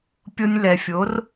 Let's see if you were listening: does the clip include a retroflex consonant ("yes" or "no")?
no